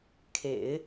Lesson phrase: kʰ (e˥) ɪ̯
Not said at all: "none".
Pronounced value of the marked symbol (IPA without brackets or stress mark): ḛ˨˩˦